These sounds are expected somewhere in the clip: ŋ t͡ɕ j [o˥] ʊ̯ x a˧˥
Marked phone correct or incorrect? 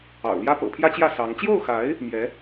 incorrect